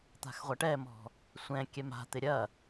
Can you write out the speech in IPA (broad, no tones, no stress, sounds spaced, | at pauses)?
t̪ a̤ x ʁʷ ɐ ʈ ɛ m ɔ̤ | sʷ ɛ̃ kʲ ɛ m a̤ t̪ ɪ ɾʲ ɐ